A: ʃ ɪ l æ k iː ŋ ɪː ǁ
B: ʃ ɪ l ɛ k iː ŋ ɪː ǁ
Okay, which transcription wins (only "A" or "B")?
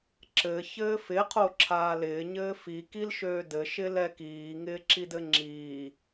B